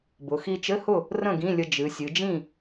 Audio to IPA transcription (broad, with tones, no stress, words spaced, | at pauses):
bʊ˩˧ xi˧t͡ʃɘ˧˥˧hʊ˥˨ | rə̃˥˨ ɡĩ˧˥˧lʲə˧ d͡ʒɨ˩˧sʲɨ˩˧ d͡ʒĩ˥˨